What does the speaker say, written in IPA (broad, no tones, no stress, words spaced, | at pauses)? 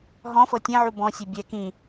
ɦɔ̃fɤ tʲɛ̃ʕu bɔ̃sʲe bʲɛ kĩ